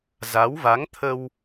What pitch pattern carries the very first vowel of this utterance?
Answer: rising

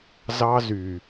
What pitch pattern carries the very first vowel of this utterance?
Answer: high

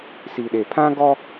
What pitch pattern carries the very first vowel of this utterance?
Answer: low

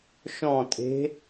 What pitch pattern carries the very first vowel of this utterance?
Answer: falling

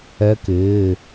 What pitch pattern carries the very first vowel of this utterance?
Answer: rising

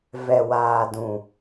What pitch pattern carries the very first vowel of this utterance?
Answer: low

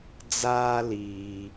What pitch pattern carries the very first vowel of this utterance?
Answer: high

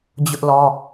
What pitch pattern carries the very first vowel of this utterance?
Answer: high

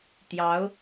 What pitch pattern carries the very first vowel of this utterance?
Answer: rising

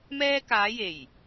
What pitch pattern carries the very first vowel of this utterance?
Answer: high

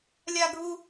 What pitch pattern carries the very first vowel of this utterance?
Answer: high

